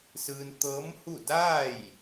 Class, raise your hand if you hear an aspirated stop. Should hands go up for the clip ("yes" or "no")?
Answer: no